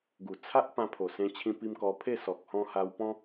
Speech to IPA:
ɡ u˨˩ t͡sʰ a˦ ʔ p ã˧ pʰ o˨˩ s ẽ˧ t͡ɕʰ ĩ˧ p i˧ m k ɔ˧ pʰ e˥˧ s ɔ˨ k̚ h ɔ̃˧ h a˧ w p ɔ̃˦

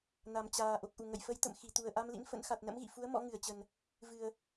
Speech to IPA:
n a˨˩ m t͡ɕ aː˨˩ ʔ o˨˩ k̚ ʔ u˧˩ ŋ ə̰˧˨ j f ə˧ j t̪ ə̰˧˨ m x i˧˩ t̪ u˨˩ ə̯ ʔ a˧ m l ḭ˧˥ n f ə̰˧˥ n x a˨˩ t̚ n ə̰˧˥ m ɣ ḭ˧˨ f u˨˦ ə̯ m ɔ̰˧˥ ŋ ɨ˧˩ ə̯ t͡ɕ ə˨˩ n | v ɨ˨˩ ə̯

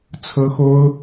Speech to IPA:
t͡sʰ ɤ˥ x o˥ ʊ̯

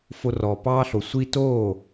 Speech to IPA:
f o˧ r ɔː˩ p ɑː˥ ɬ o˩ sʷ i˥ t oː˥˩

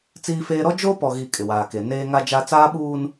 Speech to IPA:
t͡s iː˦ f eː˦ ɾ ɔ˦ d͡ʒ oː˦ p ɔ˨ ɣ i˨ kʼ ɪ˨ w aː˨ k e˨ n eː˦ ŋ a˦ d͡ʒ a˦ t͡s aː˦ ɓ uː˦ n

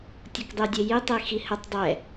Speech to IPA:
tʲ o k dˤ ʉ dʲ e j i tˤ i x i h ə tˤ dˤ ɛ

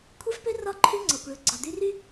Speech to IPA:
kʷʰ ɛ˦ f p ø˦ r ɒ˦˨ ǃʰ y˦ ŋ͡ǀ ɒ˨ kʷ ɭ ø˨ ɡ͡ǀ ɒ˨ d̪ y˦ r y˦

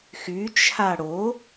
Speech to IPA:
x y t͡ʃʰ a ɽ o

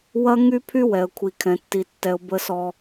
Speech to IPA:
w ɐ˦ ŋ y˦ pʰ y˦ w ɛ˨ ə̯ kʷʰ i˨ kʰ ɛ̃˨ tː i˨ tː ɛ˨ ʊ̯ b ə˦ s ɔ˦

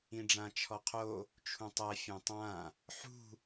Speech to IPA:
ĩ ɖ͡ʐ ã t͡ʃʰ ɔ qʰ o | t͡ʃʰ ũ tˤ ɛ fʲ ɛ̃ tˤ ã | ħ ṳ

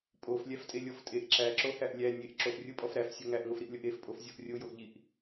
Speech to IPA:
pʼ o f lʲ æ f tʼ e lʲ ɔ f tʼ e ʔ ǁ æ ǁ o h æ ʔ lʲ æ nʲ e ʔ ǁ o ʔ rʲ o pʼ ɔ f ɾ æ f sʲ o ŋ æ ʔ ŋ o f ɾ i ʔ lʲ ɔ ʔ e f pʼ o f zʲ ɔ ʔ rʲ o j o ʔ ʎ i ʔ

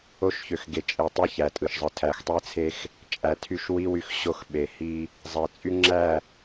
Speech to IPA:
o˦ ʃ ç ø˨ x ɡ e˨ t͡ʃʼ e˨ tˤ i˦ ç æ˨ tʼ ɯ˨ ʃ zˤ ɯ˨ tʰ æ˨ x tˤ e˦ t͡sʰ e˦ x | t͡ʃʼ æ˨ tʰ y˦˨ ʃ w i˦ w y˦ x ɕ o˦ x ɓ e˨ h i˦ | zˤ e˨ t͡sʼ y˦ ŋ͡ǁ æ˦˨

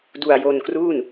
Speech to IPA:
d u˧ a̯ j o˧ n k r uː˥˩ n

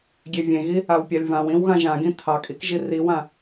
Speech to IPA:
ɡʲ e vʲ ẽ ɣ i | a w pʲ a lʲ v ã w ĩ w ɣ ã ʒ ã ɡ ĩ tʰ ɑ kʼ i k ʒ i r i w ã

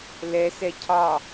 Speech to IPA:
l ɛ s ɛ cʰ ɑ

